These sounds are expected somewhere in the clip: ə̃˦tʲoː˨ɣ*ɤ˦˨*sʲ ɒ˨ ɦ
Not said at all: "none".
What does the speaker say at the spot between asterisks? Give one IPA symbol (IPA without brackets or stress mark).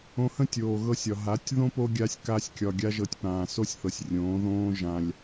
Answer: ɤ˧